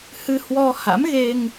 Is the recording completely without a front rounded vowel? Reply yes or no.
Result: yes